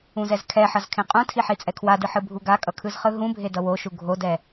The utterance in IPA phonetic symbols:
ũzɛzkʰɛħʌz kʰẽqʼũtʰi ħit͡sʼɛkʰwadɯ ħɯbʱuɡakʼʌ kʰɯzχɯɦũbʱe dʌwoʃu ɡʱodɛ

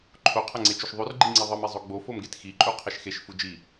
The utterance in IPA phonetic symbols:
ǃʰoqʰɐŋ͡ǀet͡ʃʉʃ ðˤʉrɡ͡ǃiŋ͡ǀi ðˤɨmi zˤoɡ͡bo fomɡetxiǃʼu qʰeʃxeʃ fud͡ʒi

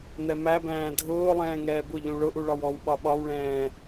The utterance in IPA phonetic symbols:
n̪ɛmæbæ̃ː dʱʊːlˠɛ̃ː ŋɛːbʊʎũ ɭʊʔu ɭɒwɔwɓɒ ɓɒwɭɛ̃ː

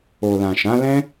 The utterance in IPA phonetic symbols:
o˨lã˨ʃã˨˦ lɛ̃˦

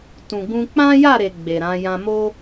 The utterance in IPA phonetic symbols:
tũ˨ɡũ˧ k͡pã˦ja˦˨ɾe˨ ɡ͡be˨ɾã˨˦ jã˧mo˦

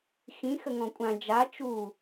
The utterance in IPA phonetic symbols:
xĩ xəŋɔ̃kʷʼã d͡ʒa t͡ʃu

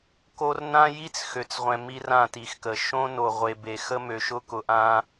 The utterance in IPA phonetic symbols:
ko˦r nã˦ji˦t͡s xø˨t͡sʁʷɛ̃˨ mi˦rã˦˨ti˨xkə˨ ʃõ˦no˨ ʁʷe˨be˨ xə˦mø˨ʃʊ˦kʊ˨ ʔã˦

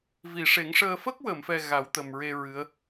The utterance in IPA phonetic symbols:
vi˨˩˨ʂe˨˩˦ŋʂəː˧ fə˦˥k̚wə˨˩˨mfɛ˨˩ ɣa˨˩˦wt̪ə˨˩mɹe˧ ɹɨ˧˥ə̯

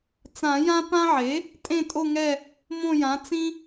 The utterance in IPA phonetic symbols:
t͡sã˨˩˦jã˦ pã˦ʕe˩˥ | tʼẽ˦˨tʼo˦˨ŋɛ˦˨ | mõ˦˨jã˩˥ t͡sĩ˦

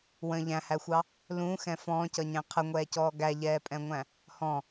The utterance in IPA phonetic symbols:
wə̃ ʎæ̃hæxʷɑ | lũːxɛ̃ fɔ̃ːcʌɲæ̃ qʰəŋʷɛːcɔː ɡæʎɛːpʼɛ̃ŋʷæ̃ | hɔ̃

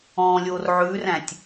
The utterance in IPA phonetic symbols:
ɔ̃lʲor ʕʉræ̃tʲ

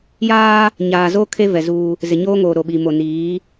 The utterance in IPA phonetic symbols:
jaː˦ | ɲaː˨zo˦ kʰe˦ vɛ˨ zuː˦ | zɪ˨ɲoː˦ŋoː˨ ɾo˨ɓi˨mo˨ niː˨˦

